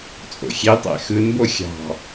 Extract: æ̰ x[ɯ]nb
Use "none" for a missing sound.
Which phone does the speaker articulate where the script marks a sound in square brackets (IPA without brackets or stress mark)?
ɯ